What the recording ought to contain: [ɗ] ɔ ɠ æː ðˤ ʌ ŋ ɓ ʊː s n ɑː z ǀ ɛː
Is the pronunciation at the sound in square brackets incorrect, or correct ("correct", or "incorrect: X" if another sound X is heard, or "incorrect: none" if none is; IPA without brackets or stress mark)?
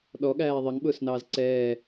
correct